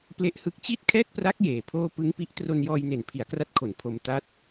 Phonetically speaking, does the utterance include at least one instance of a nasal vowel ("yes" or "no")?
no